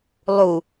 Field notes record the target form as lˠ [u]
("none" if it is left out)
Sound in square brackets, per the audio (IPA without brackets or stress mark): u